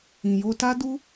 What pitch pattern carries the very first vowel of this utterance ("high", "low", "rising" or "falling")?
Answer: low